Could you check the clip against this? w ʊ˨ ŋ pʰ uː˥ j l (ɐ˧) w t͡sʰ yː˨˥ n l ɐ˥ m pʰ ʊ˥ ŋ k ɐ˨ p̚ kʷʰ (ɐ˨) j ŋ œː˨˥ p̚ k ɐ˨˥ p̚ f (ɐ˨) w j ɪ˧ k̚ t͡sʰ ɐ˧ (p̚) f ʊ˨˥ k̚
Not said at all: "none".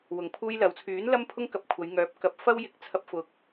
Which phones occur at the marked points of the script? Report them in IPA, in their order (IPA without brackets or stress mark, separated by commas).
ɐ˨˥, ɐ˨˧, ɐ˥, p̚